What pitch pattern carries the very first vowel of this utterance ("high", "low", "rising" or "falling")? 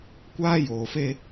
high